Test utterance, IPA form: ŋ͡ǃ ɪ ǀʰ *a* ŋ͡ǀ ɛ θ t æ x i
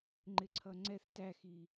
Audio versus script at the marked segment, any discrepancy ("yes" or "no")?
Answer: yes